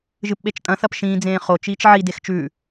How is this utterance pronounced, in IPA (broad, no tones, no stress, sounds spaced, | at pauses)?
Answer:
ʒ ɨ p ɓ e t͡ʃ tʼ ɐ̃ θ ɐ p ʃ ĩː d͡z ẽː χ o t͡ʃ iː t͡ʃ ʕ i d e x t͡ʃ ʉ